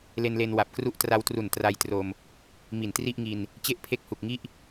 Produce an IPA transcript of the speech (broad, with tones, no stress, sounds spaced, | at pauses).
l e˧ n l e˧ n w a˨˩ p̚ k r u˥˩ ʔ t r a˧ w t r u˨˩ n t r a˧ j t r o˧ m | m i˨˩ n t r i˥˩ ʔ ŋ i˧ n | t͡ɕ e˥˩ ʔ pʰ e˦˥ k̚ h u˨˩ k̚ ŋ i˥˩ ʔ